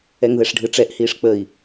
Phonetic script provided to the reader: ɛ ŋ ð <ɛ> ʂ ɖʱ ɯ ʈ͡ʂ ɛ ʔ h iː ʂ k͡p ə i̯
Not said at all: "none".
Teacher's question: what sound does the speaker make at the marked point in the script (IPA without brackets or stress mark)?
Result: ɛ